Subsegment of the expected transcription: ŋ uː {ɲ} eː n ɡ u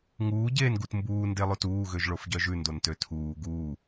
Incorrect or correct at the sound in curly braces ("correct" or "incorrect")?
incorrect